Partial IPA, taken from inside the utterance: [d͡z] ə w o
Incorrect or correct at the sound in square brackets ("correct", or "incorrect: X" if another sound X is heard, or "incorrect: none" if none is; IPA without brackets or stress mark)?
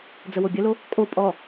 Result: correct